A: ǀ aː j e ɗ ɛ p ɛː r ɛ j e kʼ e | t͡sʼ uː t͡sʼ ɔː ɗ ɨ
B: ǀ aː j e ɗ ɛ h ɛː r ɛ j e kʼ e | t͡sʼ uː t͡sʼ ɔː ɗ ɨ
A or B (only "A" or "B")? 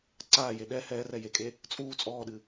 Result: B